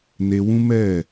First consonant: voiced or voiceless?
voiced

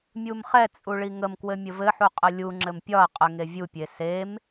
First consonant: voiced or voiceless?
voiced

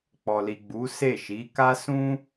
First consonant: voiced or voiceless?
voiceless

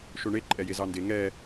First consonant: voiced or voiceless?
voiceless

